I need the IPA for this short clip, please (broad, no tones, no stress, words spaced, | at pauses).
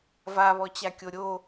vaβɔt͡ɕakʲo ɾʲo